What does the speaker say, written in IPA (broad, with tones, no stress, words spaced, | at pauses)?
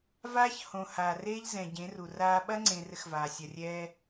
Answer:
vaː˦çhõ˨ haː˨reː˦ʎ zɛ̃˨ɟẽ˨˦ru˨raː˦ ɓɐ˦ŋ͡ǀẽ˨ rɘ˦xvaː˨ sʲɐ˨rʲɛː˦